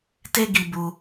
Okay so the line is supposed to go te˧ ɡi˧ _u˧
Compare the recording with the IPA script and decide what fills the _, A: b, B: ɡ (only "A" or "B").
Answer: A